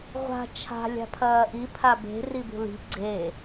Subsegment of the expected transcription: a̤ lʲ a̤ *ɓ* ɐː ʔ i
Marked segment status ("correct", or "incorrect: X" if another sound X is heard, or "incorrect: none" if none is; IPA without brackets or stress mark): incorrect: pʰ